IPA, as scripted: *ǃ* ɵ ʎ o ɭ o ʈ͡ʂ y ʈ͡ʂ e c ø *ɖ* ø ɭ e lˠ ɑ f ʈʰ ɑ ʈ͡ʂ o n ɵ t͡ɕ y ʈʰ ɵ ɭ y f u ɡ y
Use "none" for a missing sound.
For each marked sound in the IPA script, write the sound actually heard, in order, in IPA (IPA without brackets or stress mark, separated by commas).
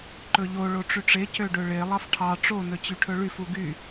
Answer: ǃ, ɖ